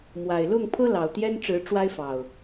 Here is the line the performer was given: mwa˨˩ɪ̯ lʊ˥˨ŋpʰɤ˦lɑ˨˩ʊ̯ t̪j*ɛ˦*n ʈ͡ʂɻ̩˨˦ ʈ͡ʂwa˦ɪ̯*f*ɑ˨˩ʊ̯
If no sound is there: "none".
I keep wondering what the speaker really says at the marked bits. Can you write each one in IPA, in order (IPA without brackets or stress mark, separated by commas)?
ɛ˦, f